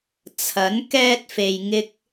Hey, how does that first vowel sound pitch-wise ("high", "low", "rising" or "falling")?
rising